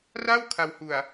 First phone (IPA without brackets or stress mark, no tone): r